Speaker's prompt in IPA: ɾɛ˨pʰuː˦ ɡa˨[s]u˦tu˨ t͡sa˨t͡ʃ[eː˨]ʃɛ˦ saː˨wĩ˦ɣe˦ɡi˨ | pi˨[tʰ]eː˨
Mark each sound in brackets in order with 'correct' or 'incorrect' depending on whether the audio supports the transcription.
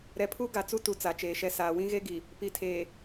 incorrect: t͡s, correct, correct

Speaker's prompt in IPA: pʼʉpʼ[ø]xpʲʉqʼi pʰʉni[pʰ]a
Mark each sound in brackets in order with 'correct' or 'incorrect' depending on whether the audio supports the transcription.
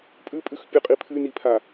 incorrect: ʉ, correct

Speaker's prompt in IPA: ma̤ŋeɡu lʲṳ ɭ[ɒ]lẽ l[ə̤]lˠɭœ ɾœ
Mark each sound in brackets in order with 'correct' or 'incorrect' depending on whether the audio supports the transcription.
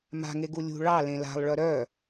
incorrect: ɑ, incorrect: a̤

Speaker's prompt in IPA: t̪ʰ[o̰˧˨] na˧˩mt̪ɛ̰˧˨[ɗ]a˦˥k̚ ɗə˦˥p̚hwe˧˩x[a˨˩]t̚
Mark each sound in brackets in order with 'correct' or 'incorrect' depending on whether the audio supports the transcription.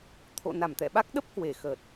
correct, incorrect: ɓ, incorrect: ə˨˩

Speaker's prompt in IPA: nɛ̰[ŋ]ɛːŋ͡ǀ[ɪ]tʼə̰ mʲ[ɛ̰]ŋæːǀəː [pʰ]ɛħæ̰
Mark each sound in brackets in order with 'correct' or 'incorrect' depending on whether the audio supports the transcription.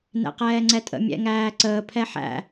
incorrect: q, incorrect: ɛ, correct, correct

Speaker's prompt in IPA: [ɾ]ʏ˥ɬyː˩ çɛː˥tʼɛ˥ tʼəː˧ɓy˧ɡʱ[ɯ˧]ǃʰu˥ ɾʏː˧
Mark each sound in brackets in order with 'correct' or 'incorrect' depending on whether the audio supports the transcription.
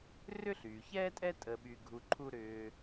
incorrect: r, incorrect: u˧

